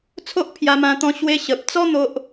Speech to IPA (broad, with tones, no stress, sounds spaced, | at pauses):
t͡sʰ o˦ ʔ pʰ j a˧ m ã˧ t̪ ɔ̃˧ ɕ w e˧ ɕ ə˨ p̚ t͡s ɔ˦ n̪ o˦ ʔ